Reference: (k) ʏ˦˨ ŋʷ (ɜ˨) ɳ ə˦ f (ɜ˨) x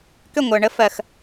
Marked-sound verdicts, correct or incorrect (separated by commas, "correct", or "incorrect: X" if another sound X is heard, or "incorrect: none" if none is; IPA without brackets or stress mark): correct, correct, correct